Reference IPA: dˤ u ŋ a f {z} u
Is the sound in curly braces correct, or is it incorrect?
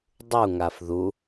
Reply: incorrect